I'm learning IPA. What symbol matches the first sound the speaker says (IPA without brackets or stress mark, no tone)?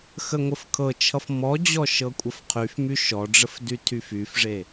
x